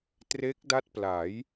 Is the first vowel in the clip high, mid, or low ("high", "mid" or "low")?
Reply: mid